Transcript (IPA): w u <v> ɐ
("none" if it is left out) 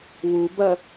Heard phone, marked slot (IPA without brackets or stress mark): b